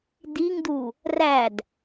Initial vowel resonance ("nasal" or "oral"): oral